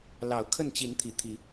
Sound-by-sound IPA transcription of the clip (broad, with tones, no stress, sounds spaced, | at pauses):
l ɑ˨˦ ʊ̯ kʰ ə˥˨ n t͡ɕ i˨˦ n t̪ʰ i˨˩ t̪ʰ i˨˦